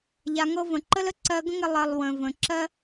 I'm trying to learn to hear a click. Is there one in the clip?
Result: yes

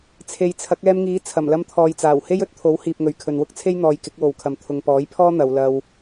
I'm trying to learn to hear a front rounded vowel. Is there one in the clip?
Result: no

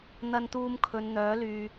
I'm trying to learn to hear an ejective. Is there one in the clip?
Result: no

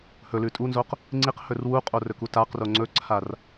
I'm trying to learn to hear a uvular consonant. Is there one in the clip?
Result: yes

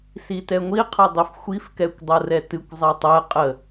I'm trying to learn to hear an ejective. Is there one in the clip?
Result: yes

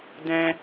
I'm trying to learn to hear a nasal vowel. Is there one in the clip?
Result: yes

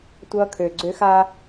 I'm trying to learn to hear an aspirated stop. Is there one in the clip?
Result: yes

